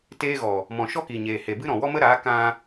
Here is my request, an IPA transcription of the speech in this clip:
t eː˦ ɣ ɔ˨ | m ɔ̃˨ ʃ ɔ˦ k i˨ ɲ eː˨ h e˨ b ɨ˦ ɾ ɔ̃˨ w ɔ˦ m ə˦ ɾ aː˨˦ k ã˧

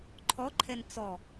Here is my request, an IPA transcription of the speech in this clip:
ǃʰ ɔ ǃʰ ɛ n t͡s ɔ

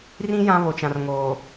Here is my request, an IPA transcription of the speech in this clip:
r ĩ˦ j ã˦ β o˨ t͡ʃ ã˨ r ŋ oː˨

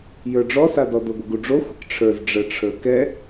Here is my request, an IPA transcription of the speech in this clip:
j ə˞ ɖ͡ʐ ɔ s a d ɔ d o ɡʷ ə ɡ u ɖ͡ʐ o xʷ ə k ʈ͡ʂʰ ə˞ z ɖ͡ʐ ə ʈ͡ʂʰ ə˞ k ɛ

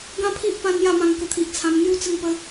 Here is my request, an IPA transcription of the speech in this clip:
ɡ ã˦ pʰ i˦ ʔ p ã˧ n j a˥˧ m ã˧ ŋ k ə˧ t̪ʰ i˨ ʔ t͡sʰ ã˧ m n̪ j u˦ t͡s ə˥˧ ŋ p ə˦

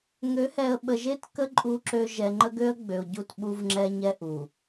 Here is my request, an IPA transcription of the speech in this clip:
ŋ ø˨˦ h ɛ˨ ə̯ ɓ ə˨ ʒ e˦˨ t k ə˦ ǃʼ u˦ ǁ ø˦ ʒ ɛ˨ ŋ͡ǃ ə˦ ɡ ø˦ ə̯ ɡ͡b ø˨ ʊ̯ ɟ u˦˨ t ɓ u˦ v ŋ͡ǁ ɛ˦ ɲ ɛ˦ ʔ u˨

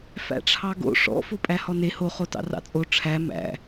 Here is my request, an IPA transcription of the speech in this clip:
f æ̰ ʈ͡ʂʰ ɑ ɡ o̰ ʂ ɔ̰ f o pʼ æ h ɔ n e h o χ o t ɑ̰ r ɑ̰ t͡sʼ o ʈ͡ʂʰ æ m æ̰

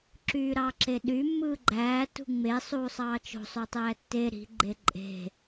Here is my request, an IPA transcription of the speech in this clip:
ǁ yː ɾ ɑ ǁ e ɗ y mː ɯː ɡ͡ǃ æː t ṳ ŋ͡m e sˤ uː sˤ ɑː t͡ʃ o̤ sˤ ø tˤ æː tː e ɾ i̤ ɡ͡ǃ e ǃʼ e̤

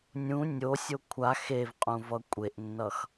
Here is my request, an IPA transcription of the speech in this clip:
nʲ ũ nʲ o sʲ o kʷʰ a x e v qʼ ũ v ʌ kʷʼ e ʔ nː ʌ x

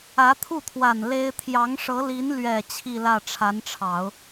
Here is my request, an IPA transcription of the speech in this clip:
ä˧˥ t̪ʰ u˥˩ t̪ʰ w a˨˩ n l e˥ ɪ̯ t̪ʰ j ɑ˧˥ ŋ ʂ ɤ˧˥ l i˧˥ n l ɥ ɛ˨˩ t͡ɕʰ i˥˧ l ä˥˩ ʈ͡ʂʰ a˧˥ n ʈ͡ʂʰ ɑ˨˩˦ ʊ̯

